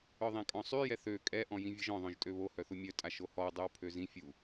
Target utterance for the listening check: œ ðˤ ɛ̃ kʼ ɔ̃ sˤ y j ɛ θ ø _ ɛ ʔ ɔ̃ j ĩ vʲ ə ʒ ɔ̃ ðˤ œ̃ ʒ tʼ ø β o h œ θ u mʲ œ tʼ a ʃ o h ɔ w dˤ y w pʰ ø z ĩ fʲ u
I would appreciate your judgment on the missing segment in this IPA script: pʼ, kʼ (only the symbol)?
kʼ